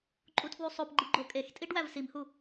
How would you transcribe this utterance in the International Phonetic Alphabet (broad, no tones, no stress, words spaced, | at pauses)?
ǃʼutʰwusˤopɡ͡ǃi ɡ͡ǃokʼextʼiɖ wævsimhu